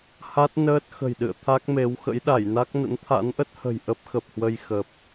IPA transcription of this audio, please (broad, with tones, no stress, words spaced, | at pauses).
ha˦˥t̚nəː˦˥t̚ xə̤˨˩jɗɨ̰˧˨ə̯t̪ʰa˦˥k̚me˨˦w xə̰˧˥jɗa˧˩jna˦˥k̚ nə̰˧˥nt̪ʰa̰˧˥nʔə˦˥t̚hə̤˨˩j ʔə˦˥p̚xə˨˩p̚hwə˧j xə˨˩p̚